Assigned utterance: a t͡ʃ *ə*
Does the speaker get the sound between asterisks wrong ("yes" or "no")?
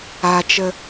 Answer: no